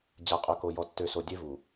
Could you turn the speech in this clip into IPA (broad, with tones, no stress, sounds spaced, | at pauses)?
d͡ʑ a˨ qʼ œ˨ k o˨ j ɔ˨ tː ø˨ s o˨ dʲ e˦ v u˨